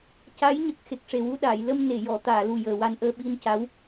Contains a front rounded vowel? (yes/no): no